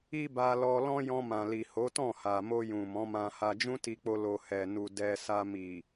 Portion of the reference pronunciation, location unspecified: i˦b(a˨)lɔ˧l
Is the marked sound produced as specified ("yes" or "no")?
no